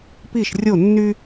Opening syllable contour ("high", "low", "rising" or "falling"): falling